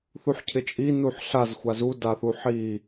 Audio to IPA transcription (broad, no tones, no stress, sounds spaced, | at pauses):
θ u ħ cʰ ɪ t͡ʃʼ i n u ħ ɬ a z xʷ a z u d a θ u ħ i